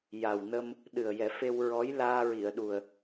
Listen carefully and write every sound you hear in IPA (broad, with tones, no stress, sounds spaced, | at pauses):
j a˨˩ w n ə˧ m | ɗ ɨ˨˩ ə̯ j ɛ˨˩˦ f e˧ w ɹ ɔ˧˥ j l aː˧ ɹ i˨˩˨ ə̯ ɗ u˨˩ ə̯